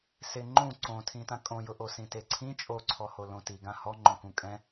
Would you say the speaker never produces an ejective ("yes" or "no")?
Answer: no